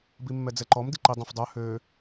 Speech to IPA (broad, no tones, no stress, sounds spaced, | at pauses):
b i mː ɛ d͡z ɛ ǃ ɔ m d i ǃ i dˤ õ f dˤ œ h ø